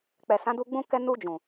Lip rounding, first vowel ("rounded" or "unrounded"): unrounded